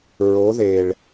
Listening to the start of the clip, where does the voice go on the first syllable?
rising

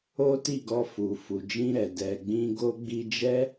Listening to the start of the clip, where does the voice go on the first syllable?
high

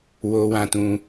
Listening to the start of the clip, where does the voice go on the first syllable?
high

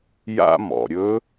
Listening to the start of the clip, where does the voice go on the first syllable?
high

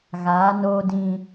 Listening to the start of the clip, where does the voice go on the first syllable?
rising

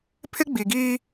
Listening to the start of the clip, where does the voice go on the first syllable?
high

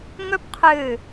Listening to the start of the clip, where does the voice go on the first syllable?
high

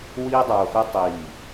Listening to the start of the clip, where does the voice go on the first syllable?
high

